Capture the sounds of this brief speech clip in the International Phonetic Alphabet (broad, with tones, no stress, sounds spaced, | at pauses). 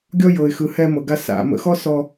ɡʲ ɔ˥ j ɤ˩ ɪ̯ x ɯ˩ h ɛ˧ m ɤ˩ ɡ a˧ s a̰˩ m ə̰˧ x ɔ˥ s ɔ˧